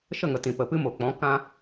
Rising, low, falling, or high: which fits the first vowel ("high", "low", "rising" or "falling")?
falling